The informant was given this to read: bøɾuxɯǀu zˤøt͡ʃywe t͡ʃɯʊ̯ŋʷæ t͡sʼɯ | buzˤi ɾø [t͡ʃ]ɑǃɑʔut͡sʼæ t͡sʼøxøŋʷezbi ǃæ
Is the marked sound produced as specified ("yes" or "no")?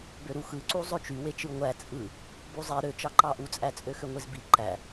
yes